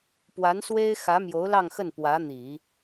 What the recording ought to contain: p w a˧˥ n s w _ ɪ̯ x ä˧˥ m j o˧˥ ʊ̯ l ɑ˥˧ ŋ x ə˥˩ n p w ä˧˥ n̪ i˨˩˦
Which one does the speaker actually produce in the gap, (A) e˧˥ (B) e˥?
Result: B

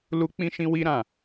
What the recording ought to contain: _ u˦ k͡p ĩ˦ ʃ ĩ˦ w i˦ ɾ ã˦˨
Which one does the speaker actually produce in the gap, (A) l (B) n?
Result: A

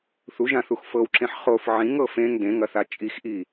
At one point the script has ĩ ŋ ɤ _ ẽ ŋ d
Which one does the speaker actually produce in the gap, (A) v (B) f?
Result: B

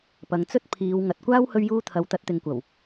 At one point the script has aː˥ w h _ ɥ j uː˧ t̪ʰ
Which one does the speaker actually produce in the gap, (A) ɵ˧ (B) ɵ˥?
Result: A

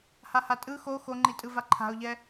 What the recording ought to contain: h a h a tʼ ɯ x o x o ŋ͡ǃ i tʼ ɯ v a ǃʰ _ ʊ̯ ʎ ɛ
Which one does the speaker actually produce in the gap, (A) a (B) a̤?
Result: B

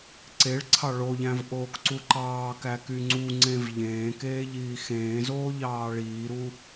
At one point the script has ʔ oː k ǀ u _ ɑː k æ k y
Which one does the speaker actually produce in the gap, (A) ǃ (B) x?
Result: A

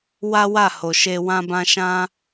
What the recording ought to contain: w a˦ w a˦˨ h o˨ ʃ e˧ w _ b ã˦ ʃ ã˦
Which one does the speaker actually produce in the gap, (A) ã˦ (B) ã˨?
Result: A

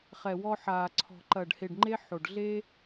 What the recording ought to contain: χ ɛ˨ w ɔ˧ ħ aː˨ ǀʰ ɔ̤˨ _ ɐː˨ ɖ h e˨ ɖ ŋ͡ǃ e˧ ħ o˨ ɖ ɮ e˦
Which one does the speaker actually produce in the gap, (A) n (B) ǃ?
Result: B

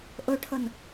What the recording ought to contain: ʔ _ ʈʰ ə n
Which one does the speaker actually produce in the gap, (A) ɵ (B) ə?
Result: A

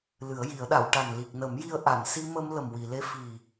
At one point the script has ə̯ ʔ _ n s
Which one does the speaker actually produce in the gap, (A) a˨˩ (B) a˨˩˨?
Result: B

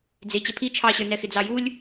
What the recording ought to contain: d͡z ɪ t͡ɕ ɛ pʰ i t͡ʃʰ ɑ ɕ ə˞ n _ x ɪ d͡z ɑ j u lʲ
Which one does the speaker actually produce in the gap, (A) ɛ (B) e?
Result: A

